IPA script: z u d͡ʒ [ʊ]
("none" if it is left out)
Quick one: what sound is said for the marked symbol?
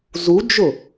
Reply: ʊ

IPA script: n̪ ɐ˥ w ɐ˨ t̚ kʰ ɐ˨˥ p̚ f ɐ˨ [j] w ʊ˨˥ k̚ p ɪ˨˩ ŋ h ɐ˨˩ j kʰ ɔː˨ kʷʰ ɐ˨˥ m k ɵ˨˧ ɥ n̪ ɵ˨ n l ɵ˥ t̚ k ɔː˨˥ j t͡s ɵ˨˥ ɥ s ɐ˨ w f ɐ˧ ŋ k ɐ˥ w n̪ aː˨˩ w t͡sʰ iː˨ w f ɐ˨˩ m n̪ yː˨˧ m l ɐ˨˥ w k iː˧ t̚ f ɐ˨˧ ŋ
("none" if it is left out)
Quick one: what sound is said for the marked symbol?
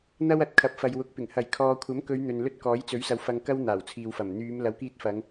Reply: j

